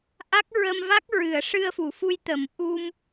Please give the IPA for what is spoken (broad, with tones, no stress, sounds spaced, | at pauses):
ʔ a˦˥ k̚ ɹ ə˧ m v a˦˥ k̚ ɹ ɨ˨˩˨ ə̯ ʂ ɨ˧ ə̯ f u˨˩˨ f u˧ j t̪ ə˨˩˦ m ʔ u˧ m